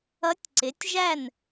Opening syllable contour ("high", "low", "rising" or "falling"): rising